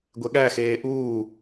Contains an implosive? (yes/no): yes